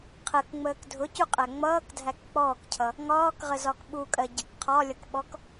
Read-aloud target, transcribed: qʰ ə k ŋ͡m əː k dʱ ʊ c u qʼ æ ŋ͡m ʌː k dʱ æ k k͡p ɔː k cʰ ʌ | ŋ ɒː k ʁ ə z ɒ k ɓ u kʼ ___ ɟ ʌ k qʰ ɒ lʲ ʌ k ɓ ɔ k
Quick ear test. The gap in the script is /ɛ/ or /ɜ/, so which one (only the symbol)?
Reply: ɜ